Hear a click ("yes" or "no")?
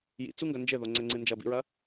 yes